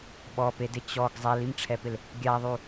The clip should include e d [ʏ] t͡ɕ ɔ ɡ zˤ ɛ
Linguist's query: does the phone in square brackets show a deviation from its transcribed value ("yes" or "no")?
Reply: yes